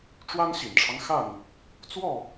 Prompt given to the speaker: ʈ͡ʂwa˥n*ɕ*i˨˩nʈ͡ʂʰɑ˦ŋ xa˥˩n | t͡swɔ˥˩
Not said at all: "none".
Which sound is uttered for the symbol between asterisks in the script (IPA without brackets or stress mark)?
ɕ